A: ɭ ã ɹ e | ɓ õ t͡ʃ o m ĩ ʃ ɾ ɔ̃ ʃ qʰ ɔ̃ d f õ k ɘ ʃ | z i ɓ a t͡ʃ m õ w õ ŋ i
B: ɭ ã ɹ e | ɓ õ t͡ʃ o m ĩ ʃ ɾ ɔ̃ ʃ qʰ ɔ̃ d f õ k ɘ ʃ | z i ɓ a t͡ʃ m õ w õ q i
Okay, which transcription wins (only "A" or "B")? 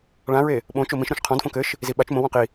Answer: B